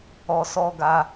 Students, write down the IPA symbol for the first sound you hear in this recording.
ɔ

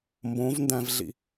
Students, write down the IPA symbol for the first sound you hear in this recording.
m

